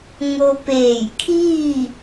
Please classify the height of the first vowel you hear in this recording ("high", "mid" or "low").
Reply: mid